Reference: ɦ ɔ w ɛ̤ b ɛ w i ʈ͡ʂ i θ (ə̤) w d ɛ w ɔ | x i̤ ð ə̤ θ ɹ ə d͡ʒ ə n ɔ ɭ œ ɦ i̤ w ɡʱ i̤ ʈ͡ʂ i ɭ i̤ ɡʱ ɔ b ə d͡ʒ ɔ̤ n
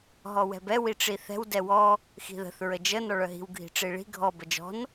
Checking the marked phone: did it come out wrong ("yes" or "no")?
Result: yes